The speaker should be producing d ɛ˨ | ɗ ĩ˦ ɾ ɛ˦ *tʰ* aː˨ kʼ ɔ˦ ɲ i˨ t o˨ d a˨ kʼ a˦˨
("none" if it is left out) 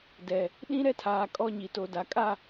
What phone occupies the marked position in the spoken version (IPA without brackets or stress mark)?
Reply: tʰ